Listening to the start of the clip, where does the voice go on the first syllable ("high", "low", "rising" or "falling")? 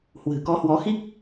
low